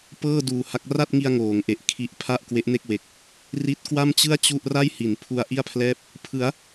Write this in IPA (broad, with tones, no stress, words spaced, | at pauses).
pɤː˥˩duː˨˩ha˦˥k̚ ra˥˩t̚ŋi˧a̯ ŋoː˩˦ŋʔe˨˩ʔ kʰi˦˥ʔ pʰa˥˩ʔkwe˦˥ʔne˥˩k̚we˨˩k̚ | ri˦˥t̚ kwa˥˩mt͡ɕɯ˥˩a̯ t͡ɕu˥˩ʔ ra˥˩jhi˩˦npʰu˧a̯ ʔi˥˩a̯pʰlɛː˥˩p̚ | pʰɯ˩˦a̯